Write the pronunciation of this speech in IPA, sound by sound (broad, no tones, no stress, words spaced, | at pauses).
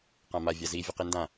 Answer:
qãma vʲazi vʲɤqindã